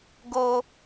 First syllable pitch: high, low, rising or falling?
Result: high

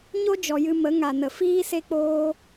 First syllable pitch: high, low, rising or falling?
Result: high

